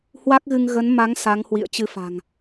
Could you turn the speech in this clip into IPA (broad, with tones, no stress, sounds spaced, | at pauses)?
h w a˦˥ k̚ ɣ ɨ˧ ŋ ɣ ə˨˦ n m a˨˦ ŋ s a˨˦ ŋ h w ḭ˧˨ ə̯ t͡ɕ ɨ˧ f a̤˨˩ ŋ